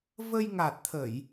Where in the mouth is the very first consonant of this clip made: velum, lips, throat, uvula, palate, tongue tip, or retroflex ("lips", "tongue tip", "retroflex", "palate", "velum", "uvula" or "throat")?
lips